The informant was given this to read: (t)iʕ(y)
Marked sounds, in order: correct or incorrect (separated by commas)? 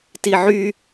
correct, correct